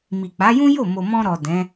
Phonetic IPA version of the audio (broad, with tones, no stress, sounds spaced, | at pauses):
m i˨ k͡p a˨˦ j ũ˦ j o˦˨ m o˨ m ɔ̃˧ ɾ ɔ˨ d ɛ̃˨˦